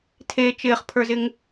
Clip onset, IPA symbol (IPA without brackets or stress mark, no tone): tʰ